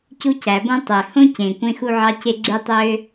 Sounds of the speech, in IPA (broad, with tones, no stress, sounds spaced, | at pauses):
c u˥ c æ˩ b õ˥ tˤ ø˩ h õ˥ c ẽ˩ kʷ ẽ˥ x u˥ ʕ ɑ˥ c e˥ ɡ͡ǀ y˥ tˤ øː˥